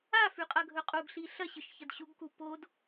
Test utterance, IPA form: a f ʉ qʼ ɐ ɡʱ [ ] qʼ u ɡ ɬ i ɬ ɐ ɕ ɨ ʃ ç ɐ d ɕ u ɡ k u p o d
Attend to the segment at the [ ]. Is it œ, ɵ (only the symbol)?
ɵ